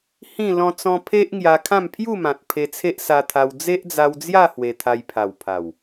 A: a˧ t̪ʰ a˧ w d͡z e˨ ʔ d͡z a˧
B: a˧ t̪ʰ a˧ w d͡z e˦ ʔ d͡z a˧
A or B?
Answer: B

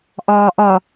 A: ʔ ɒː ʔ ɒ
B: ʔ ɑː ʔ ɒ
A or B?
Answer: A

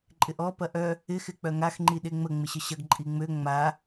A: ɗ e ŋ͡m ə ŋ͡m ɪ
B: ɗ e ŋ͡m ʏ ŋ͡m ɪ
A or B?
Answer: A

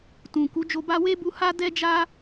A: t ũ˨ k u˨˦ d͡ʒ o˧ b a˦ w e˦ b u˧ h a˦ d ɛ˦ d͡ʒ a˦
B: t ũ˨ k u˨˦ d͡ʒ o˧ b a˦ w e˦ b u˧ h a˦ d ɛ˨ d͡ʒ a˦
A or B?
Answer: A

